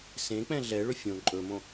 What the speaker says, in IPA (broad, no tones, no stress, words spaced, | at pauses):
sẽk͡pɛ̃ ɮɛɭɵ fʲõ ǃʼɵmõ